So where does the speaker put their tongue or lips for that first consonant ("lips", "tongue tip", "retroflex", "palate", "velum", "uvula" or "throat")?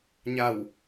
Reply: palate